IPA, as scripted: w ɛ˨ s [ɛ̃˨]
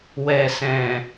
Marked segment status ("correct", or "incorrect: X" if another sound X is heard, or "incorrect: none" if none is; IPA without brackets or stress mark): correct